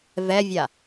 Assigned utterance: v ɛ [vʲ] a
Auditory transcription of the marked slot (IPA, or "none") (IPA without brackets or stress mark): vʲ